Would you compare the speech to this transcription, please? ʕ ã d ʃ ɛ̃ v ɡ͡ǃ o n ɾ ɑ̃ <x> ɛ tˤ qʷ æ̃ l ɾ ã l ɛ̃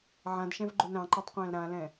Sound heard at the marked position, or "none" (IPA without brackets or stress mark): ǃ